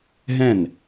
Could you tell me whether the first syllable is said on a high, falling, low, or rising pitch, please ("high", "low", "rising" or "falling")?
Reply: falling